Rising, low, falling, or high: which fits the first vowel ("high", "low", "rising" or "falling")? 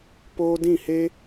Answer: high